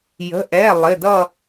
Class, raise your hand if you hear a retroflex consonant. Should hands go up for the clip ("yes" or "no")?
no